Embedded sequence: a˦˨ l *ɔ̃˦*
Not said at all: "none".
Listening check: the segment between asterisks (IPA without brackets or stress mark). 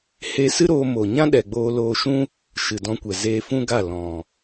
ɔ̃˨